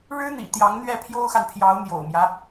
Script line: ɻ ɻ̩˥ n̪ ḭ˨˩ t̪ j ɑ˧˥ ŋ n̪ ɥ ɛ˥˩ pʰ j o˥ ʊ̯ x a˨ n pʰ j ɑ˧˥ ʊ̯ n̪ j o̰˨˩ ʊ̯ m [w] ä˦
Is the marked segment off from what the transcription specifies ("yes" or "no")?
yes